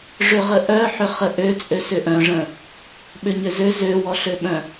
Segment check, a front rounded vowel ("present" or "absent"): present